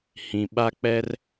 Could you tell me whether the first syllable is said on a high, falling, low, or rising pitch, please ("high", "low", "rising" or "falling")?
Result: low